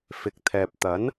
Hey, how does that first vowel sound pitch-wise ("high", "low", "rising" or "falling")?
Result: low